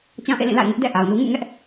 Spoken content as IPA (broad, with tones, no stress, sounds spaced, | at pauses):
t͡ɕ ã˦ ʔ ḛ˦˨ l ĩ˦˨ l a̰˦˨ ɪ̯ ŋ ɪ˦ ʔ d ɛ̰˦˨ ʔ a˨ ʊ̯ n u˦ ŋ ṵ˦˨ ŋ ɛ˦ ʔ